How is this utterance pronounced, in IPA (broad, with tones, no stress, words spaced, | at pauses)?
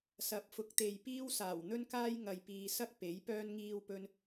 sɐ˨˥p̚fʊ˨˥k̚t̪e˨jpiː˥w saː˨˩wn̪ɵ˥n kaː˥j ŋɐ˨jpiː˨sɐ˥k̚ pe˨˥jpœː˥n ŋiː˧wpɵ˧n